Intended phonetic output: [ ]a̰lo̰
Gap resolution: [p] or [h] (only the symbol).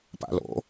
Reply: p